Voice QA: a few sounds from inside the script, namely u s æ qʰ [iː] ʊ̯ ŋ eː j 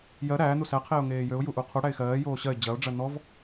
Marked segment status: incorrect: eː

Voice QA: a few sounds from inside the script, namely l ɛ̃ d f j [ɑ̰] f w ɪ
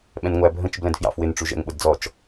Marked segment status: correct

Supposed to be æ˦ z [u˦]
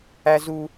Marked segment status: correct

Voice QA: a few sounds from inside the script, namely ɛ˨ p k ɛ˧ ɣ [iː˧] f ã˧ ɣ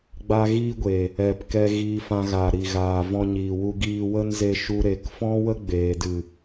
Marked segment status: correct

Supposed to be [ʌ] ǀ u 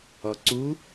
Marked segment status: incorrect: ɔ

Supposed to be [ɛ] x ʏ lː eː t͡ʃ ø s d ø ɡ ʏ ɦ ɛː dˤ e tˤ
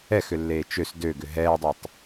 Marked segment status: correct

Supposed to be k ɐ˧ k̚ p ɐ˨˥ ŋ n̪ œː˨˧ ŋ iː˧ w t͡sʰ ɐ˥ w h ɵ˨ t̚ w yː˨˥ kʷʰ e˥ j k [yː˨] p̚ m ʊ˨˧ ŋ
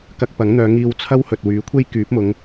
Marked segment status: incorrect: yː˨˥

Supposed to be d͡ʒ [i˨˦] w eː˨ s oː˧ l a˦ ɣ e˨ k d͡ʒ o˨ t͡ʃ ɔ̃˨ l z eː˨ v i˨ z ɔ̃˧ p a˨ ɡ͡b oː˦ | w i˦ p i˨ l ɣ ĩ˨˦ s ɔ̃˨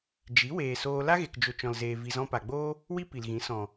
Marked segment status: correct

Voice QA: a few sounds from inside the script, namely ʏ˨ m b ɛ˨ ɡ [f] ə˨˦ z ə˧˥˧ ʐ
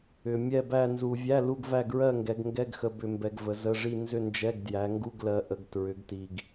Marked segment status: incorrect: v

